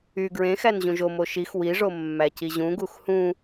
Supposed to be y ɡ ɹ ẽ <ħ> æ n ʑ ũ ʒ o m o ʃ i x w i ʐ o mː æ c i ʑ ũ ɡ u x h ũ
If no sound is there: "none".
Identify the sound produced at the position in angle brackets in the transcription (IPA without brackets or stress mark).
x